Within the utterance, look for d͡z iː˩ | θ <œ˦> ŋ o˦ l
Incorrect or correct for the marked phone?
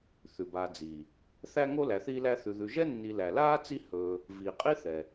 incorrect: æ˦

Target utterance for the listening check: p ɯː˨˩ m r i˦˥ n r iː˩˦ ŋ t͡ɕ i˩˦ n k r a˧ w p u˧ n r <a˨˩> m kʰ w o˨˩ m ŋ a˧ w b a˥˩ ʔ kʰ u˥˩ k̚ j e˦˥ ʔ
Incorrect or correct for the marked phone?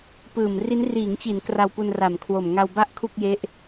correct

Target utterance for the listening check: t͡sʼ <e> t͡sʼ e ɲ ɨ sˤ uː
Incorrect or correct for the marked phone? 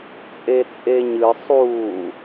correct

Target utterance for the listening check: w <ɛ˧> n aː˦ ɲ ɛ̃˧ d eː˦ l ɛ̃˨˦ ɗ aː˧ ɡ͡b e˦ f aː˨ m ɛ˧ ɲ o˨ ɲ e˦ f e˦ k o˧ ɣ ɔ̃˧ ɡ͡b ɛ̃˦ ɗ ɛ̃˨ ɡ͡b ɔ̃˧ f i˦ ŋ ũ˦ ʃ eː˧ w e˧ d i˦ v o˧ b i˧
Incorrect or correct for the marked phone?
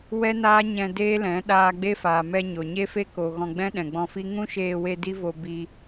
incorrect: ɛ˦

